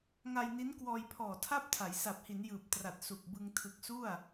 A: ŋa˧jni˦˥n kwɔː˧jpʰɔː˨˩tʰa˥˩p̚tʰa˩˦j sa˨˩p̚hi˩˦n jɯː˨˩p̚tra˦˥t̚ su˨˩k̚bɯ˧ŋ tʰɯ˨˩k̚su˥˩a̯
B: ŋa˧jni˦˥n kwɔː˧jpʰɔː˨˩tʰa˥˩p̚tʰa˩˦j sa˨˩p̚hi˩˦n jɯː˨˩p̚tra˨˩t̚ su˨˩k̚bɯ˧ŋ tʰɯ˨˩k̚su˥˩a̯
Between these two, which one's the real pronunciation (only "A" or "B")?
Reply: B